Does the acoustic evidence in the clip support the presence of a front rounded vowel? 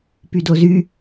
yes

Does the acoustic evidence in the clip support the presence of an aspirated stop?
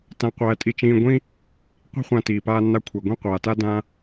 yes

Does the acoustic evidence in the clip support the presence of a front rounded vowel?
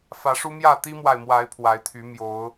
yes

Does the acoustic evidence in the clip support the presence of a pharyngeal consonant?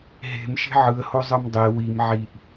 yes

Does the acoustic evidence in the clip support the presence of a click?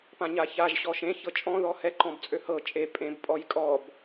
yes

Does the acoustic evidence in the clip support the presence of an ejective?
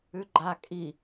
yes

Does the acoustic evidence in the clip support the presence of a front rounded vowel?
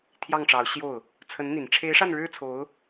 no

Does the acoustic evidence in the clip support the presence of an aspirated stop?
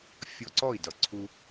yes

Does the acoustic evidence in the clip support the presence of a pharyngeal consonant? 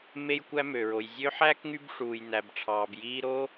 yes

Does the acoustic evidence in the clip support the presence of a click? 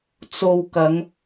no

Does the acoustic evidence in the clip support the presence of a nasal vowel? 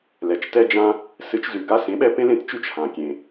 yes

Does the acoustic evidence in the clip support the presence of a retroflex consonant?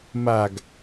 no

